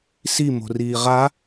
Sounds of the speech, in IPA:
s i m o̤ r iː ʁ a

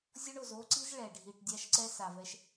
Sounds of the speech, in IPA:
zʲ o˦ ɳ o˨ z o˦ ǀ i˦ z ɭ ɛ˨ ɖʱ i˨ ʈ dʲ a˦ ʃ ǀ ɛ˦ s a˨ v ɛ˦ ʃ

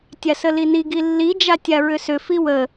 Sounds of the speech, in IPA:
tʲ a s ə l i n i ɡ i lː i d͡ʒ a tʲ a ɹ ʏ s ʏ f i w ə

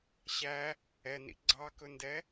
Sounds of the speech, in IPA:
ɕ æ | ɛ n ḭ ɡ͡ǀ ɑ k ɵ n d ɛ

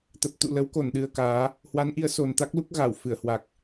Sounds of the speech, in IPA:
t̪ ə˨˩ p̚ t̪ ṵ˧˨ l ə˨˦ w k o˧˩ n ɗ ɨ˨˩ ə̯ k aː˨˦ | h w a˨˦ n ʔ i˨˦ ə̯ s o˨˩ n t̪ a˦˥ k̚ l u˦˥ k̚ ɣ a˧˩ w f ɨ˧˩ ə̯ h w a˨˩ k̚

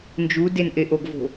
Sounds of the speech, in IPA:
n d͡ʒ u d e n ʔ e ʔ o ɡ v o̤

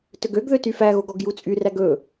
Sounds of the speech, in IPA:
t ɵ ɡ ø ɡ ð ø t y f æ ɣ o ɡ ɔ ɡ j u t͡sʼ y r æ ɡ ɵ

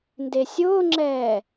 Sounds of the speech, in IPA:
n d e sʲ ʊː ŋ͡ǁ ɛː

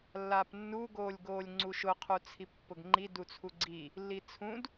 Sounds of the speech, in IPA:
lː a p nː u ɡ oː lʲ ɡ oː lʲ ŋ͡ǀ u ʃ ʊ qʰ u t͡sʰ i pː ʊ ɡ ŋ͡ǃ i d u t͡sʰ u ɡ͡ǀ i | lː i t͡sʰ ũ d

